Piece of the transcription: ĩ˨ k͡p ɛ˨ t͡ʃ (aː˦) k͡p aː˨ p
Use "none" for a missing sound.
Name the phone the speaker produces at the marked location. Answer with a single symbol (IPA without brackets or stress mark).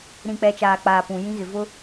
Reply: aː˨